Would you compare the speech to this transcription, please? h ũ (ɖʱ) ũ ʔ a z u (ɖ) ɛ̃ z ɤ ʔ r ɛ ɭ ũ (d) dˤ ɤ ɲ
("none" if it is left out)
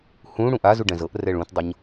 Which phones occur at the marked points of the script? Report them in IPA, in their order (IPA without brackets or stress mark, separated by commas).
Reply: ɽ, ɖ, t